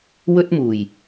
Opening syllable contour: high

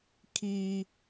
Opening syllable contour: high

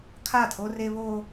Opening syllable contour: falling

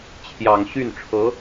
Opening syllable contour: low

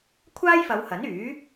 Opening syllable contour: high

